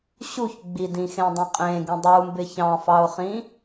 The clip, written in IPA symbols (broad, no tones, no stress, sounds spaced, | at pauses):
ɕ u ç ɡ͡b i d ĩ x ẽ dˤ ĩ qʼ ẽ ɡ ĩ dˤ u m b ɪ ç ɑ̃ f ɑ ʊ̯ χ ĩ